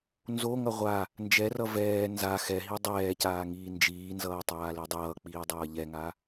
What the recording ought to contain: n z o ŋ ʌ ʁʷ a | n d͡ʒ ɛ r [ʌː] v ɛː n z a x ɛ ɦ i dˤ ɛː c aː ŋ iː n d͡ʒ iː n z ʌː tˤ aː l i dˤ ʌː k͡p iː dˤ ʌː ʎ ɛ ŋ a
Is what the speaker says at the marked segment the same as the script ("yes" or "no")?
no